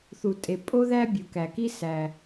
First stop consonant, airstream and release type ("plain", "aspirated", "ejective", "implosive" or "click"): ejective